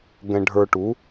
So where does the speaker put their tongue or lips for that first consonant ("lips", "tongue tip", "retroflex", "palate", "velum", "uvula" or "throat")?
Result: velum